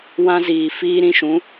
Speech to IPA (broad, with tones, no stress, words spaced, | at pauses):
wã˦ziː˨ fiː˦ɾĩ˦ʃũ˨˦